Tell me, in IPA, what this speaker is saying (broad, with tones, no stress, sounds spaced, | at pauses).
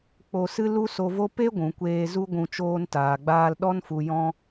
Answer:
k͡p o˧ s ɨ˦ l u˦ s o˧ v o˦ p e˦ ɡʷ ũ˨ kʷ eː˧ z u˦ ɡʷ ũ˧ t͡ʃ oː˧ n t aː˨ ɡ͡b aː˧ l ɗ ɔ˧ n f u˨ j ɔ̃˧